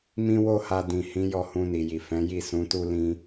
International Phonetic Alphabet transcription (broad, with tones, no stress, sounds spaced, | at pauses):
m ĩ˧ w o˧ h a˨ d ĩ˨ h ĩ˨˦ j ɔ˧ h ũ˧ n i˨ j i˨ f ɛ̃˨˦ j i˦˨ s ũ˨˦ t u˦ l ĩ˧